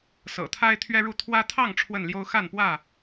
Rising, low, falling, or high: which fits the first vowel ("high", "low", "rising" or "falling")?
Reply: low